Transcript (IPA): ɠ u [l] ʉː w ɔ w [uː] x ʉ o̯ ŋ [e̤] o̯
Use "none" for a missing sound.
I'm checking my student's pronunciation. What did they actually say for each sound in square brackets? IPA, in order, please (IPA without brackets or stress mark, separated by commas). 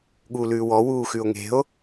l, uː, e̤